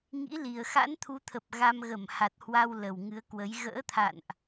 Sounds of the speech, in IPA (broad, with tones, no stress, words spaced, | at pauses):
ŋḭ˧˥li˨˩ə̯ xa̰˧˥nt̪ʰu˨˦t̪ʰə˨˩p̚ ɣa˧m ɣə˧˩mha˨˩t̚hwa˧w lə˨˩wŋɨ˨˦ə̯ kwə˨˦j ɣə̰ː˧˥t̪ʰa̰˧˨nʔ